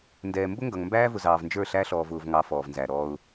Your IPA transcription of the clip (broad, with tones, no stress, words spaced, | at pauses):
ndɛː˨mbʊ˦ŋɡʌ˨ŋ mbæː˦vʊ˨zɑː˨v nd͡ʒə˞˦˨ɬæ˦ ɬɔː˨v ʊː˨vŋɑ˨˦ fɔː˨vnzæː˨ɾɔː˦ʊ̯